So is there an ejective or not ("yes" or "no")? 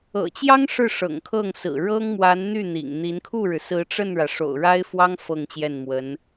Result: no